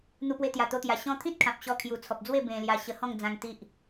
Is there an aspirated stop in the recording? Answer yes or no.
yes